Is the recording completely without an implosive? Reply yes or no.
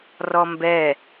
yes